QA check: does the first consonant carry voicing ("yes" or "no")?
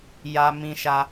yes